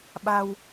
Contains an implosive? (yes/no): yes